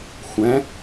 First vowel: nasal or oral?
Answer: nasal